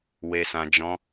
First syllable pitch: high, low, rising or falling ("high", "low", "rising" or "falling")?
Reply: high